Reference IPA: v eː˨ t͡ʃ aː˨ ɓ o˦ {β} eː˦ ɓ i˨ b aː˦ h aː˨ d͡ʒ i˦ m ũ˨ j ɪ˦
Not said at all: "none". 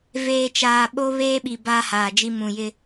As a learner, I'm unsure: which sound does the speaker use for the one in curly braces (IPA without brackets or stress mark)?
β